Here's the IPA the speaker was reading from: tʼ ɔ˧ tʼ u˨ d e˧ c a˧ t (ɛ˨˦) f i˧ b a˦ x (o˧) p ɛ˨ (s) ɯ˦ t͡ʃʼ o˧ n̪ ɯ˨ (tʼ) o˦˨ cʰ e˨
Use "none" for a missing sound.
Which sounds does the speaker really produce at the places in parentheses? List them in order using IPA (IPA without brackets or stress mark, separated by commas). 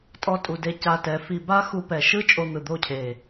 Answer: ɛ˨˦, u˧, ʃ, d̪